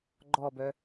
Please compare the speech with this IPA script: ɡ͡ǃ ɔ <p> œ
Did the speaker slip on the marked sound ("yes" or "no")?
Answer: yes